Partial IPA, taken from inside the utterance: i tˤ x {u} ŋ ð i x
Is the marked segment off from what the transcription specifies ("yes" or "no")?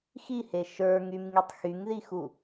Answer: yes